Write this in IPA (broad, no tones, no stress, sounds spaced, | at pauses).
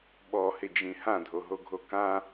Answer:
ɓ ɔ h ɪ d͡ʒ ĩ h ã dʱ o ɦ o ɡʱ o k ã